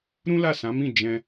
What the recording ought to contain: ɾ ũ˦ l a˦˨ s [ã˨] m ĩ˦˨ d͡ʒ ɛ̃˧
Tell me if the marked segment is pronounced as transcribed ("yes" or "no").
no